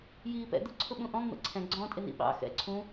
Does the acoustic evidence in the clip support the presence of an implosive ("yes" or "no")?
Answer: yes